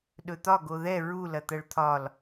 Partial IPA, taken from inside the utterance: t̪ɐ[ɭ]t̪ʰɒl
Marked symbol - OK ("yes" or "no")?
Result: yes